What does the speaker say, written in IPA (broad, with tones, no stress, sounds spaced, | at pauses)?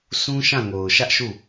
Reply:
s ũ˦ ʃ ã˦˨ ŋ o˨ ʊ̯ ʃ ä˦ ʔ ʃ u˦˨